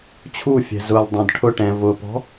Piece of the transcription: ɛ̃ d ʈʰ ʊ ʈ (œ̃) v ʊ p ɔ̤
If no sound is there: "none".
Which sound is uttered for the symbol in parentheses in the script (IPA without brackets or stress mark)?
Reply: ɛ̃